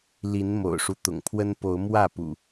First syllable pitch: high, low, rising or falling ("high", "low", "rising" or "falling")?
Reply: rising